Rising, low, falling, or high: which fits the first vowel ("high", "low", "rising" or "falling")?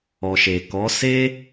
low